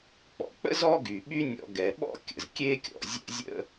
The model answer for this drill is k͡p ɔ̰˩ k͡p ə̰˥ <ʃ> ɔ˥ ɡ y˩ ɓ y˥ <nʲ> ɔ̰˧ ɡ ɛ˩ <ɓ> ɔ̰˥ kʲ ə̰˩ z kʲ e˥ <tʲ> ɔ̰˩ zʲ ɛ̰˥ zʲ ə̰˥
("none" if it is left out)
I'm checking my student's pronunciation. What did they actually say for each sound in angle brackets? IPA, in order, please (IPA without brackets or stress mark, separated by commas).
z, nʲ, ɓ, kʲ